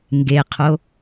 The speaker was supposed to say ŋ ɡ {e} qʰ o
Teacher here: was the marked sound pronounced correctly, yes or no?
yes